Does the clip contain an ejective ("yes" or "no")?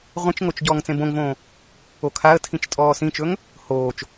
yes